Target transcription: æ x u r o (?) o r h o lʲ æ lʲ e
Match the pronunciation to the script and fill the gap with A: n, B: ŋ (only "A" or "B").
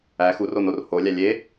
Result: A